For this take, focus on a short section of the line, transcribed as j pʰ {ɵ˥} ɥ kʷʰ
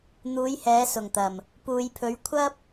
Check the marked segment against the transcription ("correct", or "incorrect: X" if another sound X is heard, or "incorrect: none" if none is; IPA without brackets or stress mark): incorrect: ɵ˨˧